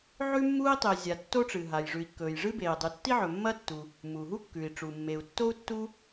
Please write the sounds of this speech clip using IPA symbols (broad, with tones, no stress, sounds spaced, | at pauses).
ʕ ʉ˥ mː uː˥ i̯ tˤ e˩ zʲ a˩ tː o˥ ʈ͡ʂ ɨ˩ ɦ a˩ j ʐ ʉ˩ i̯ kː ɵː˩ j ʐ ɨ˥ b eː˩ dˤ ɨ˩ tː i˥ ʕ ɵ˩ mː ɐ˥ tː u˩ | m uː˩ ɦ u˥ kː ʉ˩ i̯ ʈ͡ʂ u˩ mː e˩ u̯ tː o˥ u̯ tː u˥